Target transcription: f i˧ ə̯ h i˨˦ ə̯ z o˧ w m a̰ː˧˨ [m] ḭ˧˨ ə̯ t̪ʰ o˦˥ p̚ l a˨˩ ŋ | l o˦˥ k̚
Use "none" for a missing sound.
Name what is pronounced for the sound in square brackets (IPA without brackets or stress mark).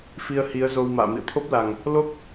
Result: m